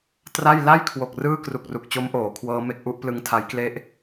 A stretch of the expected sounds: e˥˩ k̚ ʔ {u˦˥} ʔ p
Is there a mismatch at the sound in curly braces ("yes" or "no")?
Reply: no